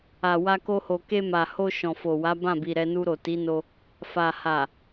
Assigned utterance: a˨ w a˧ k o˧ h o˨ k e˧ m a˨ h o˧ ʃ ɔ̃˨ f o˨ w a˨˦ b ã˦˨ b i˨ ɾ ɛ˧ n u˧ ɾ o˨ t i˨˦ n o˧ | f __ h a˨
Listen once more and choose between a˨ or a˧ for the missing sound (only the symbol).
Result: a˨